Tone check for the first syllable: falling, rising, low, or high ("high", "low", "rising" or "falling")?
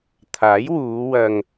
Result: rising